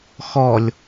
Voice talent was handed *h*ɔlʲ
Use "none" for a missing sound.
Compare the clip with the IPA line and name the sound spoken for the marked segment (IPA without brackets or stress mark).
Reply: x